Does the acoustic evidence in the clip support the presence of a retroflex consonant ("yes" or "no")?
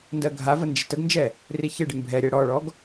yes